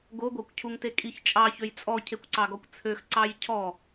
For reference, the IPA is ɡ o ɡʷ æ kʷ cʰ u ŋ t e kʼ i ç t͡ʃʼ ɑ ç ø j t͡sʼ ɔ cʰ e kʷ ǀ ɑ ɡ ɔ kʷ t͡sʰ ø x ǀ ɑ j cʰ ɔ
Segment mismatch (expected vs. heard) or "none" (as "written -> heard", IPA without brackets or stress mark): none